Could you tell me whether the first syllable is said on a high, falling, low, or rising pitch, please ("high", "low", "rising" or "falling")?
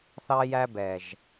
high